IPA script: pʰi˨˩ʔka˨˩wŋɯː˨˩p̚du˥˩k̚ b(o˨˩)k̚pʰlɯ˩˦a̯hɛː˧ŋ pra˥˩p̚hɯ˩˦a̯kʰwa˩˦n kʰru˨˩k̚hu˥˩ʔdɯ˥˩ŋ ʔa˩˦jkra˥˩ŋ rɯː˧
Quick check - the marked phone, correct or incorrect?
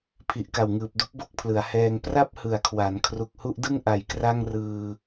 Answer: incorrect